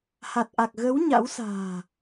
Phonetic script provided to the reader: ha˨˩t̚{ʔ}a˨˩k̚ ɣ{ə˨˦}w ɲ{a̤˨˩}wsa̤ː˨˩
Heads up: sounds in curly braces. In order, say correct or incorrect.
correct, correct, incorrect

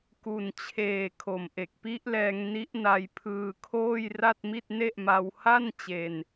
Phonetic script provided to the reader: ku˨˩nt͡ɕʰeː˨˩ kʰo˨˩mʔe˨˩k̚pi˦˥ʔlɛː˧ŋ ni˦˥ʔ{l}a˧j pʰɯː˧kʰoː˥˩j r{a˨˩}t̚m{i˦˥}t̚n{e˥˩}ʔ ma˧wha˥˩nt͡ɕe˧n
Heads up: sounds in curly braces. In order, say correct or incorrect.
incorrect, incorrect, incorrect, correct

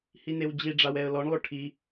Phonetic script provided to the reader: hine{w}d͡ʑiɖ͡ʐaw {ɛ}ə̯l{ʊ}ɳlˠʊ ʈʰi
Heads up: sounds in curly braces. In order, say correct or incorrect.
correct, correct, incorrect

